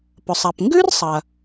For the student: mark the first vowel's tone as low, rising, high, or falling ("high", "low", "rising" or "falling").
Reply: low